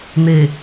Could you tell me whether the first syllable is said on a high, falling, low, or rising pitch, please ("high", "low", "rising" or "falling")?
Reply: low